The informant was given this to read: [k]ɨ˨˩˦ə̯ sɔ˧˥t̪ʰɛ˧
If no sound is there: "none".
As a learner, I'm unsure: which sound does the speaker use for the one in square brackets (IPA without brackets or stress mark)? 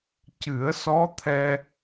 c